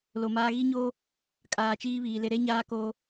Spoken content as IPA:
lo˨maː˦ ɣi˦ɲoː˦ | kʼaː˨t͡ʃiː˦βiː˨lɪ˦ ɾe˦ɲaː˦ koː˦

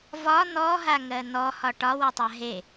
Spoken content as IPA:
vɒ n̪ɔɦaŋɜ n̪ɔhɒ ʈɒwɔtˤa ɦe

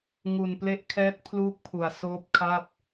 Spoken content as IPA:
ŋu˨˩nple˦˥ʔkʰɛː˦˥t̚ pʰluː˥˩k̚pʰu˨˩a̯soː˥˩p̚ kʰa˥˩p̚

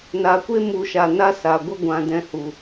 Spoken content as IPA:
naː˨kʷe˦mu˨ʃa˨ na˦sa˨ɡʷə˦ ɡʷã˧dɛ̃˧hu˨

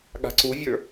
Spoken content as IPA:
ɠa̤ǀuvʲə˞

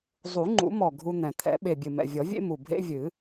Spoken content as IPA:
zˤu˨˩˦ŋ͡ǃṵ˨˩˦mɔ˨˩ ɡʱu˦n̪ɛ̃˨˩ t̪ʰɛ̰˨˩˦ɓe˨˩bʲɨ˨˩mɛ̰˨˩ vʲɔ˨˩˦vʲḛ˦ mu˨˩ bʱḛ˦vʲɨ˨˩˦

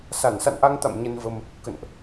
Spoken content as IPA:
sa˧˩n sa̰˧˨nʔa˧ŋt̪a̰˧˨m ɲə˧nvə˧m | kə̰˧˨nʔ

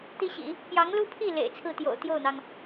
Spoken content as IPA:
t̪i˥ɕḭ˨˩˦ | pjɑ˧˥ŋlu˥pʰi˥˩ lḛ˨˩ɪ̯t͡sʰɹ̩˥˩t̪jo̰˨˩ʊ̯ t̪jo˥˩ʊ̯n̪ɑ˩ŋ

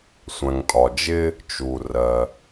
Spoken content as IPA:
sʷæ̃˩ŋtʼɒ˩d͡ʒɪ˧ | t͡ʃu˩ rɜ˩

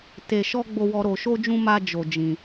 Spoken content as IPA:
te˧ʃɔ˦ ɡ͡bo˦wɔ˦ ɾo˧ʃo˦d͡ʒũ˦ ma˦ d͡ʒo˧d͡ʒĩ˧

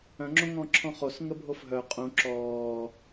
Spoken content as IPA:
œ̃ŋ͡ǁõŋɔ̃ǁʰɔ̃ χosŋəbʱof ɦœ qʼũ ǁɔː

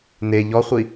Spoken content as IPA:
ne ʎɔχʷi

